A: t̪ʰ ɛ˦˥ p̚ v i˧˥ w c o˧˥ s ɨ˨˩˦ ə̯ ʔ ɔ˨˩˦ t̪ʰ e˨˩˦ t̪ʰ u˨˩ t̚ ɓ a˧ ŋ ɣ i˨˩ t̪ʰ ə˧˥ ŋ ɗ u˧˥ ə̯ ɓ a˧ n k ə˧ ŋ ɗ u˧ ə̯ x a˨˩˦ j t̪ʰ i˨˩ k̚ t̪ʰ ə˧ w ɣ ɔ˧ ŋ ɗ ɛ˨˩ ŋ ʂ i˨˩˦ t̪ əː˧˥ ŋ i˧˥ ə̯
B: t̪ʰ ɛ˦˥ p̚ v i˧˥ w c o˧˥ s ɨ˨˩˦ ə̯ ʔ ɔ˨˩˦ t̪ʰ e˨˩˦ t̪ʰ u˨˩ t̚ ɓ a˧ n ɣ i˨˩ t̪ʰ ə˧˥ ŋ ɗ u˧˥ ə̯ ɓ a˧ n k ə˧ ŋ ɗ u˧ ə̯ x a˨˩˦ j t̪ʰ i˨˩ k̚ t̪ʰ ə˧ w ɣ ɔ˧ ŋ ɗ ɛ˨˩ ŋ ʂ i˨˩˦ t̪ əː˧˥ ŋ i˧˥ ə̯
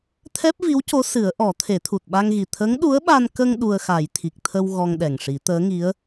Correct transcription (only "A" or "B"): A